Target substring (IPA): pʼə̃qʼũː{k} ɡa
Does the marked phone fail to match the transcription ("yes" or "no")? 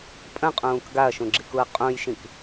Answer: no